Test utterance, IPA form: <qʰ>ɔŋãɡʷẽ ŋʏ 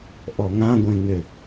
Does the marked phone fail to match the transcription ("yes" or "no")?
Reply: yes